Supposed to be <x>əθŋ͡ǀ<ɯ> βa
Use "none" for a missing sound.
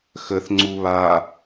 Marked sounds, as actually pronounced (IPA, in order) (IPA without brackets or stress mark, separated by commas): x, u